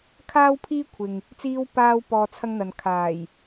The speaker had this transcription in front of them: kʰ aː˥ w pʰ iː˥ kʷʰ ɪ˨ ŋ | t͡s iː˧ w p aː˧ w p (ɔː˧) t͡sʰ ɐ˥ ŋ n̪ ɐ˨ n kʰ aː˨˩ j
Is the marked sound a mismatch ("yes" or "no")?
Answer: no